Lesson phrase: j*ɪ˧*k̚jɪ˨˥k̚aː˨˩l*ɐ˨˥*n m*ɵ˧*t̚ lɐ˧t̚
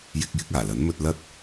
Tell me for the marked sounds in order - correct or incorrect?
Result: correct, correct, incorrect

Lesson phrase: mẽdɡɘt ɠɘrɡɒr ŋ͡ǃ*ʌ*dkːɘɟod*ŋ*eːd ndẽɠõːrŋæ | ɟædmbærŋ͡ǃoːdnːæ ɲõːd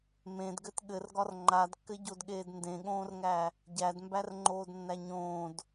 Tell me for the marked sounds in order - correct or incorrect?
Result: incorrect, incorrect

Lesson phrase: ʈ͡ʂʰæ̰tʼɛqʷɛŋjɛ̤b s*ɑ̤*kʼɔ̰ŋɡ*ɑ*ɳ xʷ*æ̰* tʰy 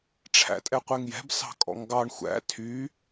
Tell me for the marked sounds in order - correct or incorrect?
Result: correct, correct, correct

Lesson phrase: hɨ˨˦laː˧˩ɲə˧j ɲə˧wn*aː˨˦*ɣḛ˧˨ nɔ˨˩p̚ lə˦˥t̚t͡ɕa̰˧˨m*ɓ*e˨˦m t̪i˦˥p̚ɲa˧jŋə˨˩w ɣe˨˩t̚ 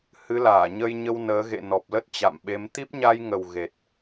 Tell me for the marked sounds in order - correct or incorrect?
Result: incorrect, correct

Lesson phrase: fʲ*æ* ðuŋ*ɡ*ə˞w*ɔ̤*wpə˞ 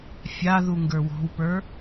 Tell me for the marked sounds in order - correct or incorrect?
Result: incorrect, correct, correct

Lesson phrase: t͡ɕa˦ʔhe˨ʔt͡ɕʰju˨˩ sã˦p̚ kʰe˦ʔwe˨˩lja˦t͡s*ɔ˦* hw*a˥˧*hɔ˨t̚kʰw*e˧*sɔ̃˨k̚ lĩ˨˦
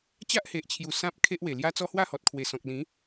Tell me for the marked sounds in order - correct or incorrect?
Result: correct, correct, incorrect

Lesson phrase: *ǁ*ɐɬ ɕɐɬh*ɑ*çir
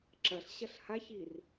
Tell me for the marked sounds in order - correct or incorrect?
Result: correct, incorrect

